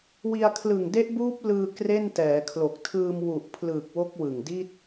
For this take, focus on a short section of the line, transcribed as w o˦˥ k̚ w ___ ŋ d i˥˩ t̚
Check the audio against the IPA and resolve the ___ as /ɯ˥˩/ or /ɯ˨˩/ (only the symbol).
ɯ˨˩